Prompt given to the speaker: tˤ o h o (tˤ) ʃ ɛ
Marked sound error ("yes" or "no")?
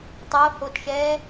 yes